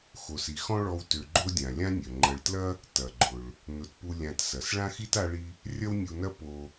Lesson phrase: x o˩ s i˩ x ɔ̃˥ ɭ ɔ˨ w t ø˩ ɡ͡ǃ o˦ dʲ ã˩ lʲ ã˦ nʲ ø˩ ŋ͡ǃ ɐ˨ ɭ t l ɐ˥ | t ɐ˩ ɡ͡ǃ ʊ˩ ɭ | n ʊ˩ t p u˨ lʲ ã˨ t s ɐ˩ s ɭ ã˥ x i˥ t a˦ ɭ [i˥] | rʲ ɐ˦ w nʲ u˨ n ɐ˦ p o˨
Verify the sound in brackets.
incorrect: i˦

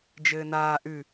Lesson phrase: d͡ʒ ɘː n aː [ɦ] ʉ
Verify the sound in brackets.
incorrect: ʔ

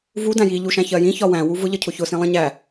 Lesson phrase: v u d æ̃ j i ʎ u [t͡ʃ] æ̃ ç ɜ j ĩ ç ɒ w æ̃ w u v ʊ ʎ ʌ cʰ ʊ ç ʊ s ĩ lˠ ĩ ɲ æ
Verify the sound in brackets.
incorrect: ʃ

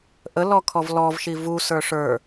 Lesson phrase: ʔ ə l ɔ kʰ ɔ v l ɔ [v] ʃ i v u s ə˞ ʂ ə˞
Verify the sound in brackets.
correct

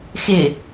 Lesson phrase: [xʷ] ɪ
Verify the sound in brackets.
incorrect: x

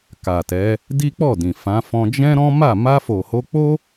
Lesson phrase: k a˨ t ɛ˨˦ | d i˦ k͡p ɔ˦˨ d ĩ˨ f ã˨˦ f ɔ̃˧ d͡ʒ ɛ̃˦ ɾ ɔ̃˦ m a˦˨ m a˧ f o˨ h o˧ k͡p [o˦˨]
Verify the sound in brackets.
incorrect: o˦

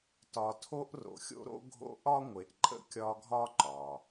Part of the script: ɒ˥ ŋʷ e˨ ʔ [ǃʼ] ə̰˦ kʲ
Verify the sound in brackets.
correct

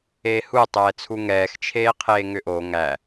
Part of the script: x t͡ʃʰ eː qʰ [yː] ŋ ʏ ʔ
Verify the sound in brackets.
incorrect: eː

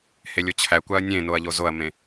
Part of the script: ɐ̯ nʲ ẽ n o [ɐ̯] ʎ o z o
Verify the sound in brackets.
correct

